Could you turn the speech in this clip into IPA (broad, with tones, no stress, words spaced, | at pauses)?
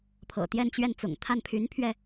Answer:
pʰɤ̰˨˩t̪jɛ˥˧n t͡ɕɥɛ˥˩nt͡sʊ̰˨˩ŋ t̪ʰa˥˩n pʰy˧˥npʰɥɛ˧